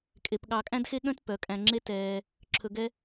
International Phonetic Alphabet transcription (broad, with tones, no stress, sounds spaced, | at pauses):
kʼ e˧ p ɠ ɑ˧ kʼ æ̃˦ d x e˦ ɠ œ̃˦ t p œ˨˦ kʼ æ̃˧ ŋ͡ǁ e˦ t ɛː˧ | ǁʰ ɵ˧ ɡ ɛ˦